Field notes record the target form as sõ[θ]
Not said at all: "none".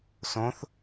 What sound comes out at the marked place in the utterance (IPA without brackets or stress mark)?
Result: θ